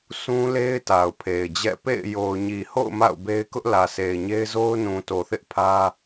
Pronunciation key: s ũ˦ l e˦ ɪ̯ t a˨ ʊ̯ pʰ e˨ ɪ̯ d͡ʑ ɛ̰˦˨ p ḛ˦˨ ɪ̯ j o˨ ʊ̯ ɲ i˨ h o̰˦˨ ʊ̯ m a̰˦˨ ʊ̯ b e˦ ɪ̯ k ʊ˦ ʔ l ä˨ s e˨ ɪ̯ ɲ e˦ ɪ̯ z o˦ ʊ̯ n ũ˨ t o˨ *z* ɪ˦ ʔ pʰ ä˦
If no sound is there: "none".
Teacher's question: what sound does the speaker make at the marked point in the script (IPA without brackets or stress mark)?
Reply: θ